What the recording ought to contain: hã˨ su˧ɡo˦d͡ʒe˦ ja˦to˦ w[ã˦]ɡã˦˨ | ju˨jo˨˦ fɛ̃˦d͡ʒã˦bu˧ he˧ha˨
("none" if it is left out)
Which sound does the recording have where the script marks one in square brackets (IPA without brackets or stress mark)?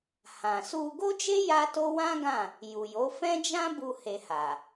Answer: ã˦